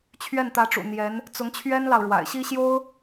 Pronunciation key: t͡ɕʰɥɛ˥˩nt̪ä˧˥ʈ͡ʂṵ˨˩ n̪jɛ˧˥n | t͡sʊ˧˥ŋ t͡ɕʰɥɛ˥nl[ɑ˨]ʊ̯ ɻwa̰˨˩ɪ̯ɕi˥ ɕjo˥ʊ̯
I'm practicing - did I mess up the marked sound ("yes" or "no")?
no